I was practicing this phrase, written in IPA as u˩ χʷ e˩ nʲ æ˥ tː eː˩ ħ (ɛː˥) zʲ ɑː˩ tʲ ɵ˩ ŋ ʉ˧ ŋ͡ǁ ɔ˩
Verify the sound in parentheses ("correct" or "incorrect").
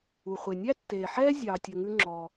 correct